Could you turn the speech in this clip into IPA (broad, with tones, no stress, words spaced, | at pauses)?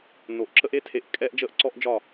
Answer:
no˨ʔ ǁə˦ʔe˦tʰe˧ʔ kʼɛː˦ʔd͡ʒəː˦ʔǀɔ˦ʔd͡ʒɒ˦˨